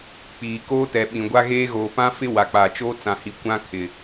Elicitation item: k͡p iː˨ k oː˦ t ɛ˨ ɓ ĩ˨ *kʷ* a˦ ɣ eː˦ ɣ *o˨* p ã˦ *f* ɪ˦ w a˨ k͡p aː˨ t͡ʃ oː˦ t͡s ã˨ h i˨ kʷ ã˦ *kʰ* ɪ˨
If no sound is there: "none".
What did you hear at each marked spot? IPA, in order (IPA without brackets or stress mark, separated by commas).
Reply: ɡʷ, oː˨, f, kʰ